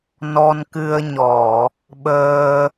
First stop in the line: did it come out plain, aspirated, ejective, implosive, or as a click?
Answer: plain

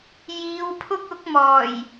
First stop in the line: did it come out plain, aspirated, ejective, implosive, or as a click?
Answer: aspirated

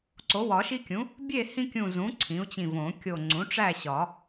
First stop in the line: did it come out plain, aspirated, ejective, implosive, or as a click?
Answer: click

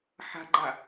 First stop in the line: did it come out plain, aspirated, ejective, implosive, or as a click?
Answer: click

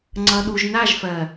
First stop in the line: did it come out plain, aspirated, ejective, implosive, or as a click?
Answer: click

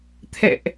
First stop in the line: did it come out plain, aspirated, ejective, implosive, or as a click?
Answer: aspirated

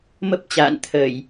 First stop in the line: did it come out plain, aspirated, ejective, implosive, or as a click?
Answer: plain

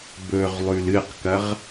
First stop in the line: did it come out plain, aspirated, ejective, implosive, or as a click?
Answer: plain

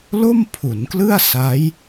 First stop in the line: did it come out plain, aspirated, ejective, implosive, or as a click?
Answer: aspirated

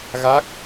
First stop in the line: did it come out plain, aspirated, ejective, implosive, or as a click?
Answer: plain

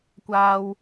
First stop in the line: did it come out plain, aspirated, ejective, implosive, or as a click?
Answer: plain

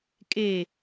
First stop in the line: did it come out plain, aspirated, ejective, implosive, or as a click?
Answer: ejective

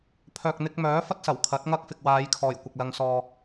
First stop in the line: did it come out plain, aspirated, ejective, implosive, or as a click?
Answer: aspirated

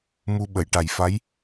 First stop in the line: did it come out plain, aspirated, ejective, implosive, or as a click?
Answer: implosive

